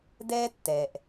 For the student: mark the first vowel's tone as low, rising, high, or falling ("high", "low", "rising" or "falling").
high